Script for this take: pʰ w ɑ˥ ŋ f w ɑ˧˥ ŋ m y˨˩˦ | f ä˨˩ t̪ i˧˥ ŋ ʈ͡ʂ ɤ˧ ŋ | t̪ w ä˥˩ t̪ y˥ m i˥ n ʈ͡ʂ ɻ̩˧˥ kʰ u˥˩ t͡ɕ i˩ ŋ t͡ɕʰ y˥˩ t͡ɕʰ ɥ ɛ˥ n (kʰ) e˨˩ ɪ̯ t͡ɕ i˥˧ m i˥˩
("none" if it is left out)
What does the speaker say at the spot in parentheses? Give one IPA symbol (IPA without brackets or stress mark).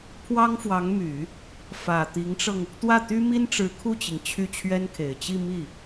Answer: kʰ